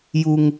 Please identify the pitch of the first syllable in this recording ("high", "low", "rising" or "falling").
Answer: high